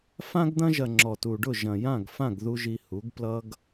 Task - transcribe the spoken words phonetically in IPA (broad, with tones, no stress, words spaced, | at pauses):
fã˧ɡd̪ɐ̃˧ʒɐ˨ ŋ͡ǁɔ˨tu˨ɖʊ˦˨ ʒɐ̃˨jã˦˨ɡfã˦˨ɡðu˧ ʒi˧hu˨˦ɡ plʌ˦ɡ